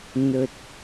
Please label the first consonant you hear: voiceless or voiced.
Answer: voiced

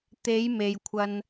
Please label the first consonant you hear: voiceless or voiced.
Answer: voiceless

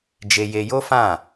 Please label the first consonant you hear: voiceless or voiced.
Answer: voiced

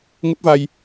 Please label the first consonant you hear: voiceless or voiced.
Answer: voiced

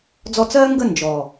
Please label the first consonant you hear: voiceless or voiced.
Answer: voiced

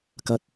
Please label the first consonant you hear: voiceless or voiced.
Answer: voiceless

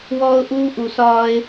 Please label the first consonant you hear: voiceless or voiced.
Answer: voiced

